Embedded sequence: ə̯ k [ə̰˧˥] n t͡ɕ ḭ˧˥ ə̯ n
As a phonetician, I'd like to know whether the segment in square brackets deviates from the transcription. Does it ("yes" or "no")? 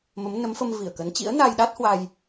yes